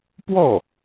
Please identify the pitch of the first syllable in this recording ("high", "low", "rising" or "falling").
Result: falling